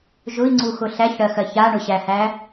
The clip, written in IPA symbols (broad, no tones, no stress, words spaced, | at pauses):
ʒʊi̯ŋ͡ǀuxʊ ɬæçɽɜxɜ çaɳʊɕæhæ